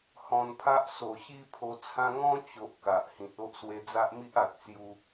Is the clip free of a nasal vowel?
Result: no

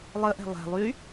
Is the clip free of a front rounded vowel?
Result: no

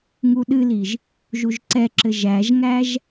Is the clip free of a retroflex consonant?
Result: yes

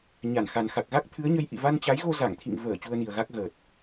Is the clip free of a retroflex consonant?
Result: yes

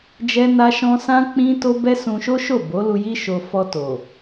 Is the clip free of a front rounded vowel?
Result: yes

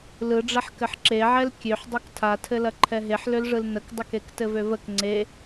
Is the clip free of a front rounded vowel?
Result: no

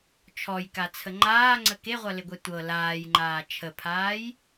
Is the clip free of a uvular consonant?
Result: no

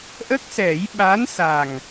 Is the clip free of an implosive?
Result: no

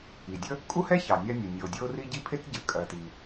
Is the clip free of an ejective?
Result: no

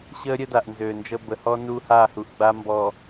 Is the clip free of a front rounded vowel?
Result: no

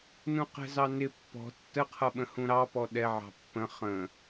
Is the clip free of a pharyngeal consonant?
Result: no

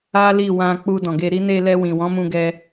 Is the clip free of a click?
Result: yes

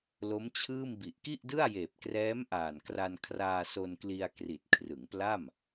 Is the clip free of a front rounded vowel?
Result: yes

